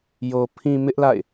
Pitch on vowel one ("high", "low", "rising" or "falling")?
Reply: low